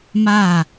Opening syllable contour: falling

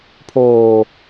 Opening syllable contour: low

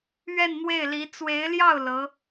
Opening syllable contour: falling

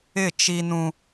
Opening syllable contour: falling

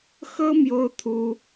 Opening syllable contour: high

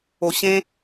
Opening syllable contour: low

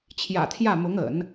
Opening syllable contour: low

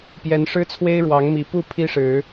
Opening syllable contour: rising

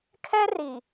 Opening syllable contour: high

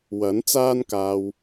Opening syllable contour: rising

